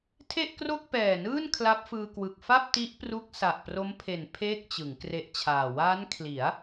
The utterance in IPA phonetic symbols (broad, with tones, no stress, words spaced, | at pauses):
tʰe˥˩ʔkro˥˩k̚pɛː˨˩nɯː˥˩n kʰla˦˥p̚fɯː˧kwɯ˨˩k̚ fa˥˩p̚ ti˦˥ʔpru˦˥k̚ sa˨˩ʔpro˦˥mpʰe˨˩n pʰeː˥˩k̚t͡ɕɯ˩˦ŋ kre˦˥ʔt͡ɕʰaː˨˩ waː˦˥nkʰli˩˦a̯